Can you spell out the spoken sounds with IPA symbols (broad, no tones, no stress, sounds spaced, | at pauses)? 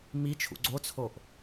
m i t͡ʃʰ ṵ ɡ͡ǀ o t͡sʰ o ʔ